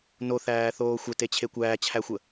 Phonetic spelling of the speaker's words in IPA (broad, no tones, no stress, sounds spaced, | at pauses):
n o θ æː θ oː xʷ ə t e t͡ɕʰ e kʷ æː t͡ɕʰ æ xʷ ə